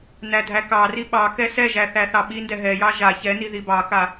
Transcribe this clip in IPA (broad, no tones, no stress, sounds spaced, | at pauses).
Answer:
n æ dʱ æ k ɑ r i ɓ ɑ k ɛ s ɛ ʒ æ θ æ θ ɑ ɓ i n d ɛ ɦ ɛ j ɑ ʒ a ç ɛ n i ð i b ɑ k a